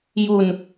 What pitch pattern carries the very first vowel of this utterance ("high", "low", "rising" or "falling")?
low